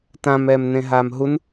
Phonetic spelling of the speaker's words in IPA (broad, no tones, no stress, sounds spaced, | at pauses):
t ã m ɛː m n ẽ ɦ aː m ɦ u n